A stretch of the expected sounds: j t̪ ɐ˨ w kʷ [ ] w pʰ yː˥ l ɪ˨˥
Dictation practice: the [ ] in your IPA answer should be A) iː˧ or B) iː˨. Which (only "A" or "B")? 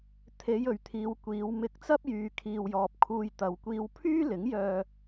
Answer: A